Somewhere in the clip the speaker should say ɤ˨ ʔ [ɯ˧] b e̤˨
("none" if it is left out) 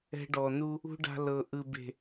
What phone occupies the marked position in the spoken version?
ɯ˨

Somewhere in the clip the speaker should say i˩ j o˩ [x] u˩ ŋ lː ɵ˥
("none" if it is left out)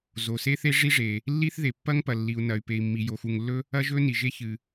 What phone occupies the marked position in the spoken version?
x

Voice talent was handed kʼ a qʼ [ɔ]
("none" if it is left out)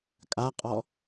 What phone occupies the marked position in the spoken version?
ɔ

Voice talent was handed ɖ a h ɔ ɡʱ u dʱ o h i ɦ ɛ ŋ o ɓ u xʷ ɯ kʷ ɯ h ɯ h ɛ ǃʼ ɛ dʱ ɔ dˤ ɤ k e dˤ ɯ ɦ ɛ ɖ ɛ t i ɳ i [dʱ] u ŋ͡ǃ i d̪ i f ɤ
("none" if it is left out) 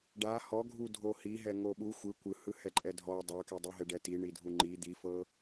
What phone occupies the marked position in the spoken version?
dʱ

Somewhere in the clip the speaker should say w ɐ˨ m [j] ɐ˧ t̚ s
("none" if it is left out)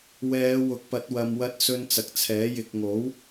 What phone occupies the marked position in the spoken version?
w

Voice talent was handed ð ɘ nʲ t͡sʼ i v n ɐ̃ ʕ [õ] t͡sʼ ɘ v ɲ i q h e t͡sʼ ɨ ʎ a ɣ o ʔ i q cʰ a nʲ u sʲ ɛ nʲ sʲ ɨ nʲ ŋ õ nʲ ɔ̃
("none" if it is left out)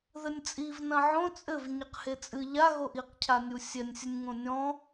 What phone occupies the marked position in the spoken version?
õ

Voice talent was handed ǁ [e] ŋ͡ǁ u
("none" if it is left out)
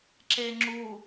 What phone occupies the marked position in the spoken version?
e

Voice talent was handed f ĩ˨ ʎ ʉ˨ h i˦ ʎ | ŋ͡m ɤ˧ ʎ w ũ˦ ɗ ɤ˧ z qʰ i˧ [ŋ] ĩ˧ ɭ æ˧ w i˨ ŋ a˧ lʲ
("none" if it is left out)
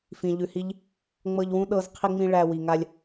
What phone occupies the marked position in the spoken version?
ŋ͡m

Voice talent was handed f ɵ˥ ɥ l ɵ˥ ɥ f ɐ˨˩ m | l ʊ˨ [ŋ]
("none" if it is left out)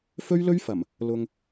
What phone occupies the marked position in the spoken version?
ŋ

